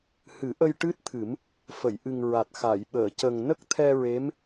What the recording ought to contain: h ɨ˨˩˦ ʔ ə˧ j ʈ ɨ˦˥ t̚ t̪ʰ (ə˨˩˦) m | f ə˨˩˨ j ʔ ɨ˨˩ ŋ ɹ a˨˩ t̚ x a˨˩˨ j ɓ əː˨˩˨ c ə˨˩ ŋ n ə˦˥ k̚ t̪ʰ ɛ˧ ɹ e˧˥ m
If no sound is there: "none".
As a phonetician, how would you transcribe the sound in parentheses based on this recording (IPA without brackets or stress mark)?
ɨ˨˩˦